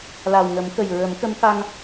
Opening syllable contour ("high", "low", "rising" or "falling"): low